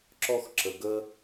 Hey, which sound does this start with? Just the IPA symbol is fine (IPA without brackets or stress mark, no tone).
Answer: ǁ